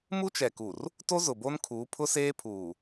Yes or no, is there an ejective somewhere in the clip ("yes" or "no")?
no